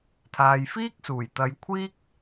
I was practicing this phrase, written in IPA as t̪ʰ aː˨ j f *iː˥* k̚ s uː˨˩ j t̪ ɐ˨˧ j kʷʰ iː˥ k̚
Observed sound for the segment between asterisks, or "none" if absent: iː˥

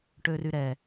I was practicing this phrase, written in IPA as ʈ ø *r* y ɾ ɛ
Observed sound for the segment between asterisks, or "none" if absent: r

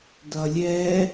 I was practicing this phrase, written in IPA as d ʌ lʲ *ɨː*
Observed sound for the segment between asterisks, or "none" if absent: ɛː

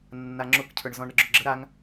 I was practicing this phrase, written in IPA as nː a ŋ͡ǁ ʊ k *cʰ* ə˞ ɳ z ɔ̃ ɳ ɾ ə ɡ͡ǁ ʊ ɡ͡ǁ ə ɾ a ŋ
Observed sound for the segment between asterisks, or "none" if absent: cʰ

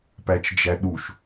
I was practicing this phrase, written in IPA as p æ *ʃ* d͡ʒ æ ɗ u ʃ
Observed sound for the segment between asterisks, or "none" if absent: t͡ʃ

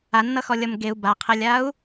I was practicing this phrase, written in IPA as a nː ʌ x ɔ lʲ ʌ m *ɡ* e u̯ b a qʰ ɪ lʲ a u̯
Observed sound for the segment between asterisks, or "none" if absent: ɡ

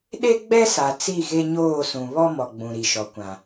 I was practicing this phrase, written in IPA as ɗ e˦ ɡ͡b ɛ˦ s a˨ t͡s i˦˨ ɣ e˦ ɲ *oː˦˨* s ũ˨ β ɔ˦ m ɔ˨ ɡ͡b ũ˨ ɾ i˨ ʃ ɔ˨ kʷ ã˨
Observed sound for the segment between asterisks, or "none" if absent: oː˦˨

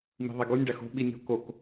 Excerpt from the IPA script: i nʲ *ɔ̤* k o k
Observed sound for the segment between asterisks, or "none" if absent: o̤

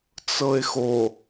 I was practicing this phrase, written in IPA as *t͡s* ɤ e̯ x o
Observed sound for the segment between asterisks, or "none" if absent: t͡s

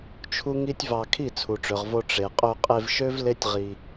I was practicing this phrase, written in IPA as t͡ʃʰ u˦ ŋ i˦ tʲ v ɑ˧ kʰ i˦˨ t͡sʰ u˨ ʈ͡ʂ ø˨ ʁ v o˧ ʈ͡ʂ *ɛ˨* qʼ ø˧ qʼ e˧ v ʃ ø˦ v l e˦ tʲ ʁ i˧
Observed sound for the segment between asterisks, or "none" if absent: e˨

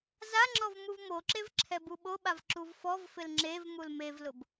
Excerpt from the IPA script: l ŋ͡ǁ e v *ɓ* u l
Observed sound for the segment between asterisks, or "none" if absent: m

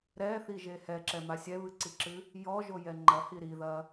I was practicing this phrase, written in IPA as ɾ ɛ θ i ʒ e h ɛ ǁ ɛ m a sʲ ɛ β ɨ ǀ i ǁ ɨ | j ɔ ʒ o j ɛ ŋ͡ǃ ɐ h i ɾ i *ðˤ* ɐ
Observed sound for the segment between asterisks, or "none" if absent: ð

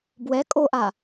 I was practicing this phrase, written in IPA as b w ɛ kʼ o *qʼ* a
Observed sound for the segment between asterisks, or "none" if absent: ʔ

